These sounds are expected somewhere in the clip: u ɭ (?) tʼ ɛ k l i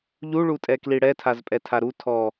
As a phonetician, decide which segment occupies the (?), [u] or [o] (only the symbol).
u